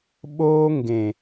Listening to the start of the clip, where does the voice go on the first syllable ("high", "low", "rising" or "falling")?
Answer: high